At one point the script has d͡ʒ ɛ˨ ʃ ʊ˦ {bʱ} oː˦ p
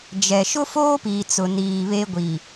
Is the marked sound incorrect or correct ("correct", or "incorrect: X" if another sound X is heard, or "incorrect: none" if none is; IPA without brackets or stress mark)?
incorrect: f